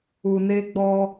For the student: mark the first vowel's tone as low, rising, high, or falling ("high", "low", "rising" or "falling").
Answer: low